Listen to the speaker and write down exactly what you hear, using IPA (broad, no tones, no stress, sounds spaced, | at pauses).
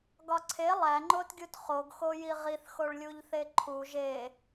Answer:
ɡ ɒ ǀʰ e lˠ æ ŋ͡ǃ o t ɡʲ u t χ o ɡ x o j i ʁ i θ x o ɭ lʲ u ʎ θ e ǃʰ u ʒ e